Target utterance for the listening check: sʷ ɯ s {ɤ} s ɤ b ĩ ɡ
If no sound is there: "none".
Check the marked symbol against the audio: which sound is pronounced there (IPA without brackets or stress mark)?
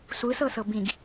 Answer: ɤ